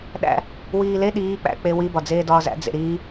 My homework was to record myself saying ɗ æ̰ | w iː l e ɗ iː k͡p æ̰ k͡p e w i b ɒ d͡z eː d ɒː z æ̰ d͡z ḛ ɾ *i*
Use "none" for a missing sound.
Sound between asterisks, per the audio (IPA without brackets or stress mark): iː